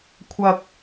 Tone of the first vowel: high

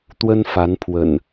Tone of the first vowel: high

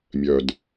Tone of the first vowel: low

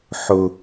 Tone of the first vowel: high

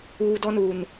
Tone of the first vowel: high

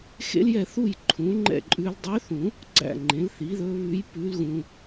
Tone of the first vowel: high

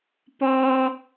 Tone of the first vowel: high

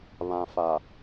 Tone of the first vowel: low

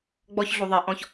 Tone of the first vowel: high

